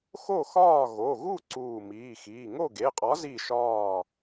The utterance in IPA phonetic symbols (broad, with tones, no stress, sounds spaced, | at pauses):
x o˥˨ x ɒː˥˨ ɣ o˩˧˩ ɣ u˥˨ ǀ uː˧˩ m iː˩˧˩ x iː˩˧˩ ŋ o˥˨ ɡ e˩˧˩ qʼ ɒ˨˥ z i˧˩ ʃ ɒː˧˩